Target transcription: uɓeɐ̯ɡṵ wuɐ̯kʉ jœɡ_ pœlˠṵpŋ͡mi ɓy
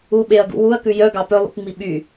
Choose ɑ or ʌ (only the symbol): ɑ